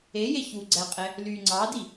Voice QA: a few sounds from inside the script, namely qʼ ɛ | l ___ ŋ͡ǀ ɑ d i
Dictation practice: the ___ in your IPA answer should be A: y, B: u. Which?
A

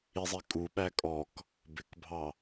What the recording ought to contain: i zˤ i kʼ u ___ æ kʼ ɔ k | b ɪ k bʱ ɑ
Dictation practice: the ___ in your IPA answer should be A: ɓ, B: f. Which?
A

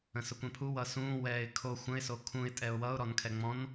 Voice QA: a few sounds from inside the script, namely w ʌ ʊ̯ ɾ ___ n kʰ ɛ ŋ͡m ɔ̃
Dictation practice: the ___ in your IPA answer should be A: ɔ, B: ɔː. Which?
A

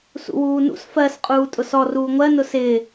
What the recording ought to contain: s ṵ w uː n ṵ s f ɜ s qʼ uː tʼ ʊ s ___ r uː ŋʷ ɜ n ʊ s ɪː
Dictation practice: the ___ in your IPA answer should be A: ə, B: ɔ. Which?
B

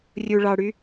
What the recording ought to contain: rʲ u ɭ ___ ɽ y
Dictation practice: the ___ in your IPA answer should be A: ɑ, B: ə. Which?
A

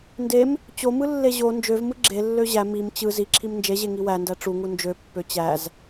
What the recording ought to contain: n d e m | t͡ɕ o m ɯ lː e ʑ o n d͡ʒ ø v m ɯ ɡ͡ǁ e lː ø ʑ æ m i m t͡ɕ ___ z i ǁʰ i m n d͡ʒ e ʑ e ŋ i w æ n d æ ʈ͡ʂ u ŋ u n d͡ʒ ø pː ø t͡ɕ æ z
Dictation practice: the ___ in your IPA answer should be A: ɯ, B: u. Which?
A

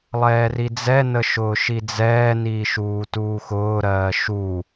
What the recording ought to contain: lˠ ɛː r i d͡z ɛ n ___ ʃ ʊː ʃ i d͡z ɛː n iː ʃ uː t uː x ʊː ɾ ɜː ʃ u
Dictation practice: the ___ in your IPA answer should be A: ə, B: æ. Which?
A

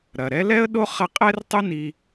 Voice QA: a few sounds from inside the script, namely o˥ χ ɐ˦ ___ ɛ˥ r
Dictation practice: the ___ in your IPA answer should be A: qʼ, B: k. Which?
A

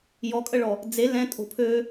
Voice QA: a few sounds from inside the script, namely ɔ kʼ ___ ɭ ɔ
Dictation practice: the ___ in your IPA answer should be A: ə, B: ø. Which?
A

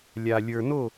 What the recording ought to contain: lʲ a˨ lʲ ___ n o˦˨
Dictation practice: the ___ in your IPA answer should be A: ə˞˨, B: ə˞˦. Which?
A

